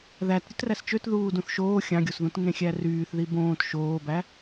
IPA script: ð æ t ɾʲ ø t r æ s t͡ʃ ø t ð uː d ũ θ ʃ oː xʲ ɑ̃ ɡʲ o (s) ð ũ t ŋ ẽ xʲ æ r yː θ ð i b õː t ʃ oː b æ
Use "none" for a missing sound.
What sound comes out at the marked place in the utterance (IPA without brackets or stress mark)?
s